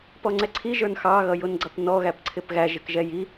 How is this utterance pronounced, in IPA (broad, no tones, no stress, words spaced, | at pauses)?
pɔŋ͡ǀɛǀʰi ʒə˞nxɑ ɣʌjʊnɡ͡ǀʌpnɔ ɣæpǀʰɪpɣæ ʒɪkʒɛji